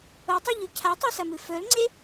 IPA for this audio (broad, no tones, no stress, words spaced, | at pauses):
otˤuʎʉ cʰatˤɨsɐmɨ fɵlŋ͡ǀe